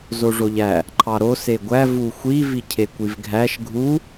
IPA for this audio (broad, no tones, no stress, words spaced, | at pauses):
zoʐoʎæ | ǃʰɑɾo seɡʷæ vuxʷi vicʰekʷivɡʱæʃ ɡʱu